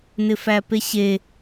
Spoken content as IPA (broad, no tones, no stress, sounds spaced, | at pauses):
n ɪ f æ p e ɕ e